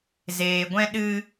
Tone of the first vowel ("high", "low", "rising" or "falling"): low